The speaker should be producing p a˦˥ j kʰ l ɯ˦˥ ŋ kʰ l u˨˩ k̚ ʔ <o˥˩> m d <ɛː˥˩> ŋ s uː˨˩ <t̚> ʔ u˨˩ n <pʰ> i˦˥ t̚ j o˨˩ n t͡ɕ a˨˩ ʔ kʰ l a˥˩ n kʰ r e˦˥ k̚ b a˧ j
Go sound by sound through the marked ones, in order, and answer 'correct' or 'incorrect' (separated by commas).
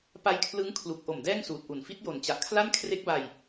incorrect, correct, correct, incorrect